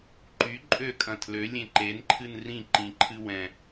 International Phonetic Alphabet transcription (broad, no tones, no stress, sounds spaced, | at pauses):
ǃ y ǃʼ ø kʼ ɐ̃ tʰ l ø lʲ ẽ ǃ e n ǃʰ ɨ n r ĩ ǃ ĩ ǃʰ ɨ w ɛ̃